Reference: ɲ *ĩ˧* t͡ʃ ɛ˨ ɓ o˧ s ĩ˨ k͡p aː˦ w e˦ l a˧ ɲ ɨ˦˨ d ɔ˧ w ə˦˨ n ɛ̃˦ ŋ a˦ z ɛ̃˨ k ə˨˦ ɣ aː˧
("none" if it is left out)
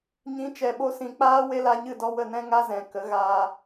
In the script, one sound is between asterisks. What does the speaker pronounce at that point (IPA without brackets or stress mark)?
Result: ĩ˨˦